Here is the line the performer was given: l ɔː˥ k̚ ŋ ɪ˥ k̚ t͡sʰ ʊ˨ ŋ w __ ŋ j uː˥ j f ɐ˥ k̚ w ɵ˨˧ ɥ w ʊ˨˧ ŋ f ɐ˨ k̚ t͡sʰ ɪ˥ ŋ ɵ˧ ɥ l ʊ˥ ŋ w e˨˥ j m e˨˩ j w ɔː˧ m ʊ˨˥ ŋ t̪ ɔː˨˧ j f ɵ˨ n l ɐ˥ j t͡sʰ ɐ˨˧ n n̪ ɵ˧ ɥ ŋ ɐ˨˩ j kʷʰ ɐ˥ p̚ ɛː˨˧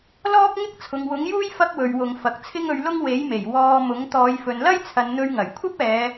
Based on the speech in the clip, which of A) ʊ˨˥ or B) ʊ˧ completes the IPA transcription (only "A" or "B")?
A